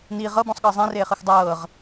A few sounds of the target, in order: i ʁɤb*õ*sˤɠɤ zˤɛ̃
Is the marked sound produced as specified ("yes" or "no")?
no